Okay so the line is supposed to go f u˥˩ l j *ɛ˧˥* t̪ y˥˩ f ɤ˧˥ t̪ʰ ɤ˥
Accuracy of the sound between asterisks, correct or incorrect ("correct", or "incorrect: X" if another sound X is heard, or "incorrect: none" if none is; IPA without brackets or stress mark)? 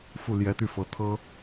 correct